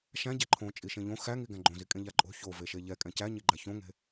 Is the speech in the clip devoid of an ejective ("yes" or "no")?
no